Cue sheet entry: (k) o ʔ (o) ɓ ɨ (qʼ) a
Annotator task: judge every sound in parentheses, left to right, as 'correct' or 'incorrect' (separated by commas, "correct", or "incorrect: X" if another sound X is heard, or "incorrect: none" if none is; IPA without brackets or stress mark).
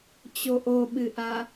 incorrect: t͡ɕ, correct, incorrect: ʔ